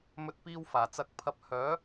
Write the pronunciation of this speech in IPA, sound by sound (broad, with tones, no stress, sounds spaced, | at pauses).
m ɵ˧ t̚ p iː˧ w f aː˨˩ t͡s ɐ˧ k̚ pʰ ɐ˧ p̚ h œː˨˥